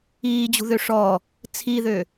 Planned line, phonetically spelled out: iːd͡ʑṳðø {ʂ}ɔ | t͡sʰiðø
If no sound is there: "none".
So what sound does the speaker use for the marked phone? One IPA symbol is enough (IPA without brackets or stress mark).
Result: ʂ